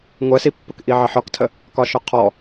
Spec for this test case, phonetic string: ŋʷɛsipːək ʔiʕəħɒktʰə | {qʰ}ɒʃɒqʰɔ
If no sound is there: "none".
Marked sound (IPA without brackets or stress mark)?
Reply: k